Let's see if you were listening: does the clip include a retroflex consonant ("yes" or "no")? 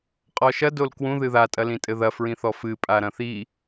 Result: no